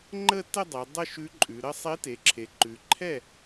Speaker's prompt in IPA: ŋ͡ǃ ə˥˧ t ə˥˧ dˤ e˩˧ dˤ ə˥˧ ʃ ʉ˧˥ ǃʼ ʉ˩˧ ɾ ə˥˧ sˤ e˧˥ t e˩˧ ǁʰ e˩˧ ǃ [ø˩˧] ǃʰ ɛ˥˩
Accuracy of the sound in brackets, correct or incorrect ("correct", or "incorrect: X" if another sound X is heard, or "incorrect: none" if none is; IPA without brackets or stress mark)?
incorrect: ʉ˩˧